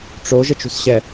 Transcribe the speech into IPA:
ʈ͡ʂo ʒət͡ʃṳsɕɛ

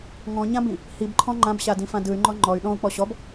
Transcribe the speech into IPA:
ŋɔ̃ɲãbĩ | hibǃʰɔ̃ ŋ͡ǃãbɕadĩfã dɯy̯ŋ͡ǃɔ ŋ͡ǃɔy̯ ɗɔ̃u̯k͡pɔ ɕɔb

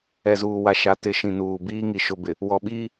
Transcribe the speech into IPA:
ɛ˨zuː˨wa˨ʃa˨˦ tɪ˨˦ʃĩ˨nuː˨ biː˦ ŋi˨ʃʊ˨bɪ˨ | wɔ˨ɓiː˦

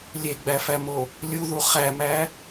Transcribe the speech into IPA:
lʲeɡ͡bæfæmo | lʲuðu χæmæ

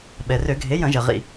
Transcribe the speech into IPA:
ɓɛ˩rø˧˩˧ɡʱe˩˥ jɐ̃˧˩˧ʒɐ˩ ʁḭ˧˩˧

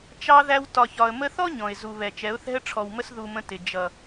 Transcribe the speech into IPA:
t͡ʃɑ˧ðæ˧w tɒ˨çɒ˨ə̯mə˧θɔ˦ ɲɔ̃˨ɪ̯zu˨βɛ˨ t͡ʃɛ˨˦ʊ̯θɛ̤˦ə̯ʈ͡ʂʰɔ˨wmə˦s ðu˧mə̃˧ tɪ˨ d͡ʒʌ˨

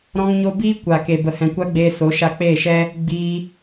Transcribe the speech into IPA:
ɾɔ̃˧ŋɲo˧biː˦ kʷa˨ke˨ bə˨hɛ̃˨kʷa˦ɡ͡beː˧ so˨˦ʃa˧k͡peː˦˨ʃɛ˦ | ɡ͡biː˧

